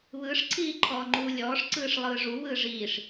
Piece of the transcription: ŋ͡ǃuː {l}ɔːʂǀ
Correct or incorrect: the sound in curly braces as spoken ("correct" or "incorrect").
incorrect